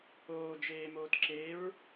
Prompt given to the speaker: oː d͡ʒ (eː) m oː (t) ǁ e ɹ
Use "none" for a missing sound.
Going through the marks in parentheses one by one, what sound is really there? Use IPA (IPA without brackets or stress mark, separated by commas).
eː, t